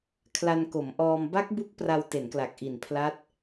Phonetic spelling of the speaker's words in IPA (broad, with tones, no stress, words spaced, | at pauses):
kʰla˧nko˩˦mʔɔː˧m ba˦˥k̚bu˦˥k̚ pra˧wte˩˦nkla˨˩k̚ ʔi˨˩npʰla˦˥t̚